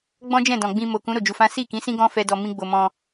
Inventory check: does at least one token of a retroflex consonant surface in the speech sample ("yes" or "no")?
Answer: no